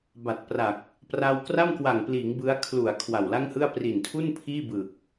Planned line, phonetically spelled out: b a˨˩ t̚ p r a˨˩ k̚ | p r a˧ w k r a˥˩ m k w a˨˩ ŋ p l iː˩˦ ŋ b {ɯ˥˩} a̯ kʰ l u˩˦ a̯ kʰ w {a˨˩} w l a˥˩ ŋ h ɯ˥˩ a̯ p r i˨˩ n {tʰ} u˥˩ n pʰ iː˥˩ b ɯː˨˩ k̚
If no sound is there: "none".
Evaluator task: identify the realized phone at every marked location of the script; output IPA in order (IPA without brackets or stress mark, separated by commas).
ɯ˦˥, a˨˩, tʰ